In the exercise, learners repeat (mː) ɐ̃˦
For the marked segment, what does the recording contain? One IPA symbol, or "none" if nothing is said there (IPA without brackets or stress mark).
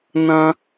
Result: n